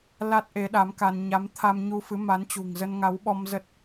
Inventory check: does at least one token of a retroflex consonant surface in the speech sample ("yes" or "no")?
no